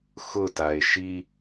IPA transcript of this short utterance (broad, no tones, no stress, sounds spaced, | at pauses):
x ʊ t a e̯ ʃ i